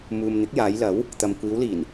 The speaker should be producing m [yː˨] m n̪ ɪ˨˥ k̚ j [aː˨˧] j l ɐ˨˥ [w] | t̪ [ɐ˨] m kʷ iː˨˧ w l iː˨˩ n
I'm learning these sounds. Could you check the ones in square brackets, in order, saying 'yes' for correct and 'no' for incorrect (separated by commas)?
no, yes, yes, yes